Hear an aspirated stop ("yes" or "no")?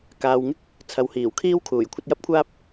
yes